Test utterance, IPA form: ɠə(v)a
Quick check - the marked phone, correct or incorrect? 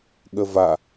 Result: correct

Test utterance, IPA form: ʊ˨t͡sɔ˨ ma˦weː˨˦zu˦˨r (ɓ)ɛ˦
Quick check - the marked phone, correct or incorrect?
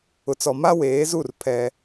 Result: incorrect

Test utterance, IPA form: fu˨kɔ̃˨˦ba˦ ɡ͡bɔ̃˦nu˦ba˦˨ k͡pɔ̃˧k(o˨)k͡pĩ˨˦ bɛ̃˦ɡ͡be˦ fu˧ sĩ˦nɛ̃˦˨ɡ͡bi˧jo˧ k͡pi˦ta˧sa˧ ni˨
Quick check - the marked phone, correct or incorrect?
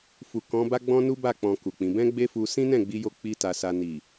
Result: incorrect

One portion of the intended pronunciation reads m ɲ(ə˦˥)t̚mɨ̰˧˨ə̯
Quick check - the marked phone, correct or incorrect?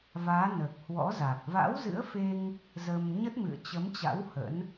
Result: correct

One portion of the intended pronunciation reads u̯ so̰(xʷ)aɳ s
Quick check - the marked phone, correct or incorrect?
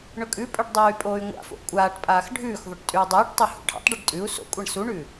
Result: incorrect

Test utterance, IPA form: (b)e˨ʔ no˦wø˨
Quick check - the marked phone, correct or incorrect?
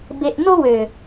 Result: correct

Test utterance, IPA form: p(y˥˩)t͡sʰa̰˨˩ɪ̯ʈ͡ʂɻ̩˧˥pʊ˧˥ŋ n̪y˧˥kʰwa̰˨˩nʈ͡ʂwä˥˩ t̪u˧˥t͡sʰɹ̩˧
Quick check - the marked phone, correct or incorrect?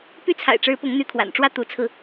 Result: correct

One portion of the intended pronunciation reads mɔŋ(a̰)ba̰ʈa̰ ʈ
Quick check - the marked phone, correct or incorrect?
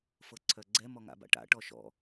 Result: correct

